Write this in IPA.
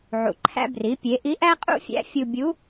ʕ ṵ˩ ǃʰ æ̰˧ b r i˩˧ pʲ e˩˧ ʔ i˧˥ ʔ æ˥ qʼ ṵ˥ fʲ æ̰˧˥ fʲ u˧ bʲ u˧˥

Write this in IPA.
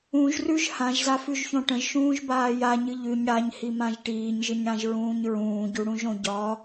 ũ ʒ r ʉ ʒ h ã ʒ z a f ʉ ʒ ç õ ʈ ə̃ ʒ ʃ ũː ʒ b aː j a ɲ ɨ ʎ ʉ ɲ ɽ a ɲ h i m ã ʒ ʈ iː ɲ ʒ ɨ ɲ ɽ ã ʒ ɹ ũː ɲ ɹ ũː ɟ u ɽ ũ ʒ õ ɟ ɒ

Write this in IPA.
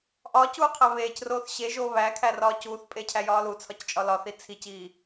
ʔ ɒː c uː qʰ æ β eː c r oː θ ɕ e ʒ oː β æ kʰ æ r ɒː c uː θ pʼ e cʰ æ j ɒː l u t͡sʰ ɒ c t͡ʃʼ ɒ l ɒ θ i t͡sʰ i c iː

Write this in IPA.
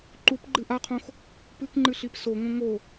ǃ u p ɡ͡ǃ ɨ ʔ a qʰ õ x | p ɨ k ŋ͡ǃ ɨ ɬ i p s o ŋ õ ŋ o

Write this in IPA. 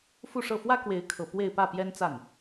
f u˥˧ ʂ ɤ˥˩ f w ä˥ k w e˧˥ ɪ̯ kʰ ɤ˨˩ p w e˥˧ ɪ̯ p ä˥˩ p j ɛ˥ n t͡s a˥˩ n

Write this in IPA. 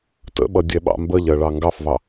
t ə̰ ɓ ʌ dʲ ɛ ɓ ɑ̰ m b ə ʎ ɜ ɭ ɑ ŋ ɡ ɑ f v ɑ

